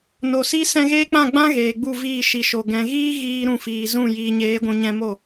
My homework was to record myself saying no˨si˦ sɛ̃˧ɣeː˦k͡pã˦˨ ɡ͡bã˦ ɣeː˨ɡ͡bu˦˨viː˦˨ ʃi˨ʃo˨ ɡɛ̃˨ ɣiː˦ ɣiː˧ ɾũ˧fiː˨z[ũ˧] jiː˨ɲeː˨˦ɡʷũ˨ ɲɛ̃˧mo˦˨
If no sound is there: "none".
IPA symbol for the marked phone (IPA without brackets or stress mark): ũ˦˨